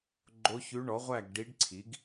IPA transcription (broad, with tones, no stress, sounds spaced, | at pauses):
ɡ͡ǃ o˧˥ ç ʉ˧˥ ɳ ɔ˩˥ ʁʷ æ˥˨ ɡ ɖ i˧˥ ɖ ǀʰ i˩˥ ɡ